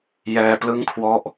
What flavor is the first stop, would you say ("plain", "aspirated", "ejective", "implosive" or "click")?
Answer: plain